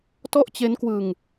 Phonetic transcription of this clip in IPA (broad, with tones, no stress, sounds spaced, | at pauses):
t ɔ˥˩ ʔ t͡ɕ e˦˥ n k w ɯ˧ ŋ